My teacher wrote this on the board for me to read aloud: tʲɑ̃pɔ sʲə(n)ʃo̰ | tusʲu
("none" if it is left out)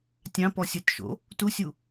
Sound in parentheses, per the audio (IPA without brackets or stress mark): t